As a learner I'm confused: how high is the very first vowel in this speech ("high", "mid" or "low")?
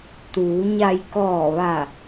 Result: high